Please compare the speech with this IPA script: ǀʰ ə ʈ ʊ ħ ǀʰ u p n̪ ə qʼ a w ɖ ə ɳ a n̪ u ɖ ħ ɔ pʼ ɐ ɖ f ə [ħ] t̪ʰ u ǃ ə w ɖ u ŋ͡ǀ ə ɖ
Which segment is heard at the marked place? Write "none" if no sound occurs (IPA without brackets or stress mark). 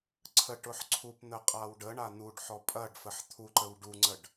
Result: ħ